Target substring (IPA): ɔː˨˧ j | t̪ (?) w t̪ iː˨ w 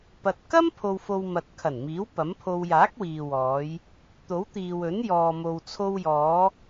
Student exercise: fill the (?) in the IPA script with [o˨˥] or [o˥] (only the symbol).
o˨˥